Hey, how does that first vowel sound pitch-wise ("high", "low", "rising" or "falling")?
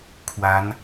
rising